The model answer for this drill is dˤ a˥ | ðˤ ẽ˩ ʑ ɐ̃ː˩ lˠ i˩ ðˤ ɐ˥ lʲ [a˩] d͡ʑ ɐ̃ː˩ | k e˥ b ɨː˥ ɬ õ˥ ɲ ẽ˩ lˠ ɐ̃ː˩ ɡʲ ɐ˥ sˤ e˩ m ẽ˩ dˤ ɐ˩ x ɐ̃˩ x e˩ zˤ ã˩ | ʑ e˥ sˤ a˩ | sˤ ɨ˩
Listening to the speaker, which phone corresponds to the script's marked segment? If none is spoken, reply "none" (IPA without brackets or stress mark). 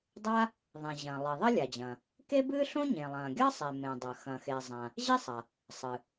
a˩